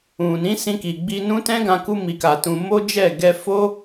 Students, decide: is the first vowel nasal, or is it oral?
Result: nasal